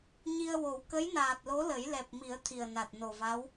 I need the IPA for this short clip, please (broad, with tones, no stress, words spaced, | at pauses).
ɲi˧ə̯wo˨˩˦w kə˧˥jnaː˨˩t̚lo˧˥ lə˨˩˦jlɛ˨˩p̚mi˨˩˦ə̯ t̪ʰi˨˩ə̯na˨˩t̚no˨˩va˧˥w